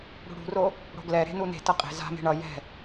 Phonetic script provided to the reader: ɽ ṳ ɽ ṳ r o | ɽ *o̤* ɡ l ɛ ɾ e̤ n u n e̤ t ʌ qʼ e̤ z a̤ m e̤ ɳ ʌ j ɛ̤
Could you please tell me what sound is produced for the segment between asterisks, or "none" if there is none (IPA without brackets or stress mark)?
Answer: o̤